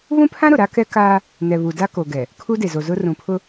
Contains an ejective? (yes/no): no